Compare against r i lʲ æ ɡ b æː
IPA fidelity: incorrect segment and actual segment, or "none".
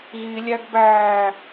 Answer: r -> ɣ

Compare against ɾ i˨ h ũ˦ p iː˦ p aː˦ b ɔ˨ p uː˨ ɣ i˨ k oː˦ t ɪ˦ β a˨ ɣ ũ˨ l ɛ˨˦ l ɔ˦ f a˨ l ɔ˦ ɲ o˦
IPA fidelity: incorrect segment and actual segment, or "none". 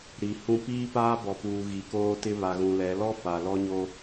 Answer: none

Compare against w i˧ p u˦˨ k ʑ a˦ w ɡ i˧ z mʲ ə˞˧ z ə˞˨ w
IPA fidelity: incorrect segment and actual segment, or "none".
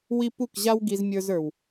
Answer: none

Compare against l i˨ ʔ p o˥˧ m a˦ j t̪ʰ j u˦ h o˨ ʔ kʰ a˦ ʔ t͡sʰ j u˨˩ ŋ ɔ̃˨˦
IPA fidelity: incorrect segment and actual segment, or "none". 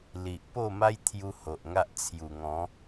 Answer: kʰ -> ŋ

